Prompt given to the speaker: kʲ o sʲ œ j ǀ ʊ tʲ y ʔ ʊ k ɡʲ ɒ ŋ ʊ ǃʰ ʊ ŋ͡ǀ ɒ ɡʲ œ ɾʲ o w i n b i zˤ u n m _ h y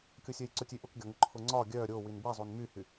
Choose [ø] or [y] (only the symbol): y